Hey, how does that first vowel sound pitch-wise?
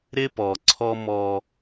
high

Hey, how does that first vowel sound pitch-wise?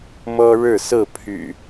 high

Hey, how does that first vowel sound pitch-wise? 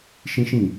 high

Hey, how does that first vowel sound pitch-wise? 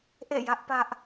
falling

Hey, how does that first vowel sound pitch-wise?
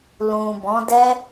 low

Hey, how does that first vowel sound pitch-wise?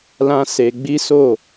high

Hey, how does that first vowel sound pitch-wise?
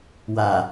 low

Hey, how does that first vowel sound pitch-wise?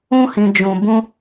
high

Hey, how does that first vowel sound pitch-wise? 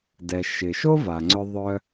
low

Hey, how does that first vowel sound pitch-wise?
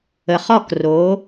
low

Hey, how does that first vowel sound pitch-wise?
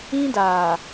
high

